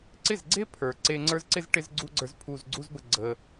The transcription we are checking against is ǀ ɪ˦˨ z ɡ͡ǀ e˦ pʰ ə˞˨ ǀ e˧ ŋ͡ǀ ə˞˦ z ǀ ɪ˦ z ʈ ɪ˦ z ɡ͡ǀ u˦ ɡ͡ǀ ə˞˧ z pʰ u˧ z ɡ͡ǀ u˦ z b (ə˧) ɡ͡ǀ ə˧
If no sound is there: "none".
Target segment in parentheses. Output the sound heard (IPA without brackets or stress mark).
ə˧